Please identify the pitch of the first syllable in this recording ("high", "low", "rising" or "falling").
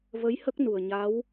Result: rising